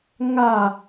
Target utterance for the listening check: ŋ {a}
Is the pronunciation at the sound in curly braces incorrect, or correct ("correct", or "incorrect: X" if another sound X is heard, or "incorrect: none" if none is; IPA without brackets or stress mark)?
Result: correct